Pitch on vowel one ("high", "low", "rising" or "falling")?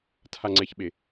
low